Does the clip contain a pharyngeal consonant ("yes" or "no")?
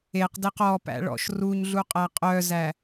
no